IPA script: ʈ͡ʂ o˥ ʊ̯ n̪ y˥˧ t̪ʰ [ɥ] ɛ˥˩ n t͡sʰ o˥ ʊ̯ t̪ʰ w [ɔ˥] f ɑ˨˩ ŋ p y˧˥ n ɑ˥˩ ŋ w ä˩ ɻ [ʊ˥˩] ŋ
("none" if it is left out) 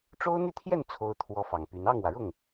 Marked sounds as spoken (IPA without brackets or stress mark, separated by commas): j, ɔ˥, ʊ˥˩